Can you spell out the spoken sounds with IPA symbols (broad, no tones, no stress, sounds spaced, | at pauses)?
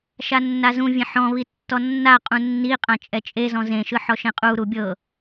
ʃ a nː a z ũ vʲ ẽ ħ ɔ̃ β i tː ɔ nː a qʼ ũ nː i qʼ ã t͡ʃʼ ɛ t͡ʃʼ e z ɔ̃ z ẽ ʃ ɯ ħ ɔ ʃ ẽ qʼ u ɾ u bʲ ɤ